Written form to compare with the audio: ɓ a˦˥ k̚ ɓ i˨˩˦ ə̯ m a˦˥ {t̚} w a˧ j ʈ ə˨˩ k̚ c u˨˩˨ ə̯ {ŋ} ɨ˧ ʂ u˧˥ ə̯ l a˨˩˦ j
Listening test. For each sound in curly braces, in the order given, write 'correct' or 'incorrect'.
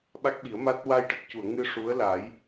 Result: correct, correct

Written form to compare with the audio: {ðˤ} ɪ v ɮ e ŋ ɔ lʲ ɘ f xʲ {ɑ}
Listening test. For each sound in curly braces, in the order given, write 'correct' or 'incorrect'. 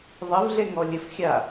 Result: correct, incorrect

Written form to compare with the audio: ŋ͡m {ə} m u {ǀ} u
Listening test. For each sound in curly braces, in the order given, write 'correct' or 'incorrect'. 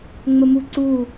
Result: correct, correct

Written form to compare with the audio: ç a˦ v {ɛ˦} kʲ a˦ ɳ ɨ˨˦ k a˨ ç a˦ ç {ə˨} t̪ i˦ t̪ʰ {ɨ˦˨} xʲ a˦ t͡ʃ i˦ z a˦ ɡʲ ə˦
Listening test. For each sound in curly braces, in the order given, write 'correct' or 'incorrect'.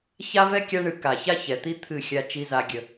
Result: correct, incorrect, correct

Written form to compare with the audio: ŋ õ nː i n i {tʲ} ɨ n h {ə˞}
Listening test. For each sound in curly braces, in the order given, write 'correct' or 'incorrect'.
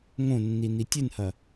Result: correct, incorrect

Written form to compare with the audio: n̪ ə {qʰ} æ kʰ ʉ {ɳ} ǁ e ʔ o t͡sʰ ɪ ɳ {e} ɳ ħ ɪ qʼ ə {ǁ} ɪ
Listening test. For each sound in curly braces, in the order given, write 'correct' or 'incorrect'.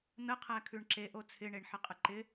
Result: correct, correct, correct, incorrect

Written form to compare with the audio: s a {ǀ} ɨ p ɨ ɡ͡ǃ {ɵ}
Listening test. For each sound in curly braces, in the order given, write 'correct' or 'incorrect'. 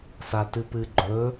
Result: incorrect, correct

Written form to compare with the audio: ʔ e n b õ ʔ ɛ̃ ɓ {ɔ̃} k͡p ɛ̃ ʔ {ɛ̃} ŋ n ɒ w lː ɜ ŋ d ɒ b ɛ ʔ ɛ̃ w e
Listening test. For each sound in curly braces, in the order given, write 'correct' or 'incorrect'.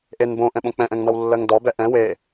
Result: incorrect, correct

